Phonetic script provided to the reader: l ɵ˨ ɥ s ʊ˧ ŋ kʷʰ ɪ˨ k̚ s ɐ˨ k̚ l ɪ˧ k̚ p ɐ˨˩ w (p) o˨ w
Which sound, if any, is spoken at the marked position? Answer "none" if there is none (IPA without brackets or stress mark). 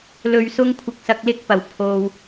pʰ